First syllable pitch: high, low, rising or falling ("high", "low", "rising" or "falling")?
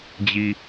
low